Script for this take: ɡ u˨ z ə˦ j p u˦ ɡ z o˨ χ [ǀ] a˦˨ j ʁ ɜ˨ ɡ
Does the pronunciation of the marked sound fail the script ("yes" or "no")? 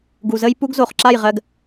yes